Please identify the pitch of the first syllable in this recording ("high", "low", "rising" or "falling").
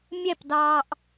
falling